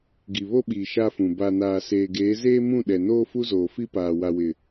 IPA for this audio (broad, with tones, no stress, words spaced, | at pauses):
ɡi˨βo˦ɓiː˨ ʃa˦fũ˨ ba˨ naː˨seː˨ɡeː˨˦ zeː˦mũ˦˨ ɗɛ˨noː˦ fu˦zoː˨fi˦paː˨ wa˨wɪ˨